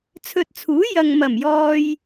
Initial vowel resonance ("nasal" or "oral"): oral